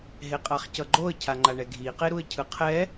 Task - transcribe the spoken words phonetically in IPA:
ɦ e qʼ a χ c ʌ ɡ͡ǃ o ə̯ cʰ a ŋ͡ǃ a ɳ ɛ ɡʱ i q e ɾ u ə̯ cʰ ɯ qʰ ɛ

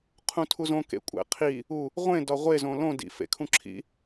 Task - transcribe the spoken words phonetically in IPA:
qʰ ũ tʰ u z õ k ḛ kʷʼ æ̰ qʰ i | u | ʁʷ ẽ d ɒ ʁʷ e z õ l õ d ḭ f ḛ kʰ ũ ǁʰ ḭ

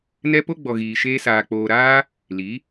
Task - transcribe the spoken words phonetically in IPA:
n ɛ˦ p o˦ ɡ͡b ɔ˨ ɣ iː˨ ʃ eː˧ s aː˨ k͡p oː˨ ɾ aː˦ | l i˨˦

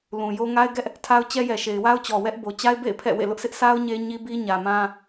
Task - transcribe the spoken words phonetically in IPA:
l ũ˨ j o˦ ŋ a˦ ɪ̯ ɡ ɛ˦ ʔ | tʰ a˦ ʊ̯ t͡ɕ ɛ˦ j ɛ˨ ʃ e˨ ɪ̯ w a˦ ʊ̯ t͡ɕ ɔ˨ w ɛ˦ ʔ b o˨ t͡ɕ a˦ ɪ̯ b ḛ˦˨ ɪ̯ pʰ ɛ̰˦˨ w ḛ˦˨ l ʊ˦ ʔ s ɪ˦ ʔ sʰ a˦ ʊ̯ ɲ e˦ ɲ i˦ b i˦ ɲ ä˨ m ã˦

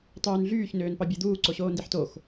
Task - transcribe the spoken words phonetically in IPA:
tˤ yː n ɮ yː ç n øː n p ɑ bʲ e d̪ uː ǀ o ɕ oː n d i ħ t o x

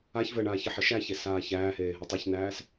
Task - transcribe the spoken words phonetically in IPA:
a ç v ɘ ɳ aː ç ɘ ħ ɘ ʃ æ ç e s aː ç æː h eː ɦ ɘ tˤ u ç n æː s

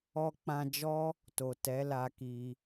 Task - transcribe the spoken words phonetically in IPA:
ɔ˧ k͡p ã˧ d͡ʒ ɔ˦ | t o˨ t ɛ˨˦ l a˧ k i˧

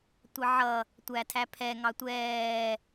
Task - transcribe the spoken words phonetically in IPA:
tʷ ʌ ʕ ʌ | tʷ æ tʰ æ pʰ ɛ ŋ ɑ tʷ ɛː

